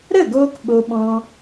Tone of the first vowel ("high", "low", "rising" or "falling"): falling